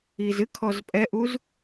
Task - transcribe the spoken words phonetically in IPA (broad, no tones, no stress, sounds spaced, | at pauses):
i z ɨ kʰ ɔ z pʼ ɛ ʔ u z